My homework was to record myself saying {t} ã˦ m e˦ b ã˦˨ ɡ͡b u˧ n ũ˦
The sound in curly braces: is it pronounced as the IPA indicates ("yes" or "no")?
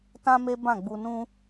yes